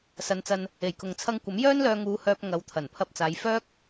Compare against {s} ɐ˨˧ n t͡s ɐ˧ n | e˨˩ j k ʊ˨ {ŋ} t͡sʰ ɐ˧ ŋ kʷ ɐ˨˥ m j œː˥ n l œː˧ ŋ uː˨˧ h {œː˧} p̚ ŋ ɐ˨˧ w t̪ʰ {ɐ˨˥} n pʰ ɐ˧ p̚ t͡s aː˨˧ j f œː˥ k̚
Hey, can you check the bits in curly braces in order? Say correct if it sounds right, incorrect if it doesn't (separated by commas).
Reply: correct, correct, correct, incorrect